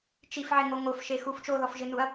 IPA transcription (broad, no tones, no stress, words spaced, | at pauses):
t͡ʃifʕɪŋo ŋofʃexuf t͡ʃoðɔfʒɪnuɐ̯